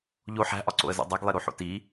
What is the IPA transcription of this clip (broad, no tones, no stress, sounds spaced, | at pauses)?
ʎ o ħ æ̤ ʔ ɒ ǀ o̰ ə̯ z o̰ dˤ æ ɡ lˠ e ɾ o ħ o̰ t i